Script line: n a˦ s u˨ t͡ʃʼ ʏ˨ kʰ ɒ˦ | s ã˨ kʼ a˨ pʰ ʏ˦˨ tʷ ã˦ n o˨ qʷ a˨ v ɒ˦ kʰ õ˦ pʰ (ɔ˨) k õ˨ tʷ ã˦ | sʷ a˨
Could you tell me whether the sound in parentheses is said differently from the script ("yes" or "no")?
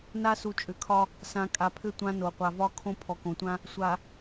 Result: no